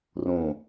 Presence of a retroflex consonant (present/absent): absent